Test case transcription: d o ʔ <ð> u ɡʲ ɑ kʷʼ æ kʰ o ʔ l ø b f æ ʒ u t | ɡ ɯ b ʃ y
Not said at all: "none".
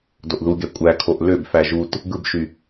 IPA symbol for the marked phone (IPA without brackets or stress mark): ð